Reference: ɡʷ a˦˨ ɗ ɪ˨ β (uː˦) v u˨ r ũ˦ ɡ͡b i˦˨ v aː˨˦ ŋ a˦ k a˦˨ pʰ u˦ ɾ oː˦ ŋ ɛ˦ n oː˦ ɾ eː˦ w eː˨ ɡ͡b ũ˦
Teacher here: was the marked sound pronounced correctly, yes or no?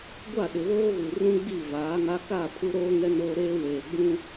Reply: no